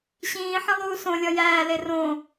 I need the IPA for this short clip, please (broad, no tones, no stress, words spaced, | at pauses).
ɕĩːħĩ lˠuːsõlʲɒ jæːle rõ